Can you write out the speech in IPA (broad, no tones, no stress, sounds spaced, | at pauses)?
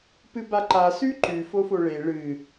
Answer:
p ɨ b a ǃ a s ʉ ǃ ʉ f o f o ɭ e ɭ ɨ